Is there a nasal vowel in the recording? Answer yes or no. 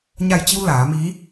no